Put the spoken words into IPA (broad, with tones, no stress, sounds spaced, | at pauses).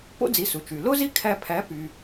p o̰˥ d͡z i˩˥ s u˩ t͡ʃ y˩ l o˥ z i˥ kʰ æ˧ pʰ æ˩˥ p y˩